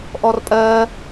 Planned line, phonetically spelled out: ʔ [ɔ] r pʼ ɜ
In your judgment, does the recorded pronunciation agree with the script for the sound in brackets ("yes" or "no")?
yes